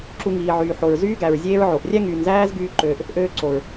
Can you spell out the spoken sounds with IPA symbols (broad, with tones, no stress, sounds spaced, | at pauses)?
ǁ u˧ ŋ iː˨ ʕ yː˨ ħ o˨ ɹ z yː˦ ɡ æ˨ ɹ zʲ eː˦ ɹ ʕ o˨ ʔ rʲ æ˦ ŋ yː˨ n z æː˦ z ɡ yː˦ ǃ øː˧ ʔ | ʔ øː˧ ǀ o˨ ɹ